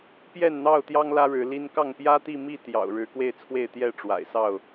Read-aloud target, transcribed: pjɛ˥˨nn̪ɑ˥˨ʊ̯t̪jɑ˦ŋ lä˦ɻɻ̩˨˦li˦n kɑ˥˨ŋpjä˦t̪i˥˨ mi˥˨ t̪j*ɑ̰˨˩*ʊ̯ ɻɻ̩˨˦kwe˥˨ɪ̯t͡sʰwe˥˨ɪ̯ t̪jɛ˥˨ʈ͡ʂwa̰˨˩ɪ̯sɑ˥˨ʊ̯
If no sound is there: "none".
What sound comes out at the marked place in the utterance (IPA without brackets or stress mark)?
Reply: ɑ̰˨˩